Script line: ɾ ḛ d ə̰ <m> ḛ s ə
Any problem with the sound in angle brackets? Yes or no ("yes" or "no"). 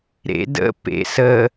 yes